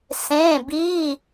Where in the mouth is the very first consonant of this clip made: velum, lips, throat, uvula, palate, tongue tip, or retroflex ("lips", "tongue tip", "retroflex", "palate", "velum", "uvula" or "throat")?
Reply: tongue tip